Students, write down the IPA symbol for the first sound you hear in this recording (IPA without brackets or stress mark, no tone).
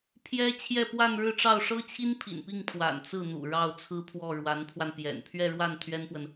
pʰ